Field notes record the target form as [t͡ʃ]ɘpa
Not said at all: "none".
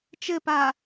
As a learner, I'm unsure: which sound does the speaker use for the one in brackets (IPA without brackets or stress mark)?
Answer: t͡ʃ